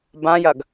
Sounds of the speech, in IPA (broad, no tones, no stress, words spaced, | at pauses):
bãjɐɡ